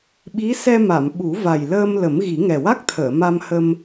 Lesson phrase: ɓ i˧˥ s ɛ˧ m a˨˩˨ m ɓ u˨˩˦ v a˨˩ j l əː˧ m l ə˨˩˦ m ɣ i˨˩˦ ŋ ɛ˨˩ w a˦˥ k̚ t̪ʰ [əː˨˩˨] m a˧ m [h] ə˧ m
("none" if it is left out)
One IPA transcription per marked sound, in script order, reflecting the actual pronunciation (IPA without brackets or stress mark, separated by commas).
əː˨˩˨, h